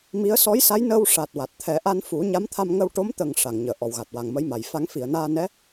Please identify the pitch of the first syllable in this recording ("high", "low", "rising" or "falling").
rising